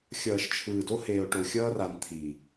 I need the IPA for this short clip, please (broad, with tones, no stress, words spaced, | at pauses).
xʲʌː˨ʃt͡ʃʰɯː˨do˦ heː˨o̯ʈo˨xʲʌː˦ra˨n t̪ʰi˨